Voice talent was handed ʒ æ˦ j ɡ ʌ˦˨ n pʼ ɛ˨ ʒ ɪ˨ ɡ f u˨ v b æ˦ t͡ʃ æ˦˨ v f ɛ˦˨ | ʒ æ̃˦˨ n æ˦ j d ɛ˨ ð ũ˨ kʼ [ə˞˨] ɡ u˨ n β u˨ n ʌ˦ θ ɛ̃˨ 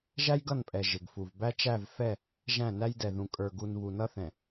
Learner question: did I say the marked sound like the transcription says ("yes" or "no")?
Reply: yes